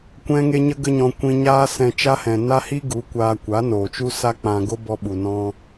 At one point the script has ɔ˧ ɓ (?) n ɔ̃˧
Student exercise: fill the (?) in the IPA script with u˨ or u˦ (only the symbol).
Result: u˨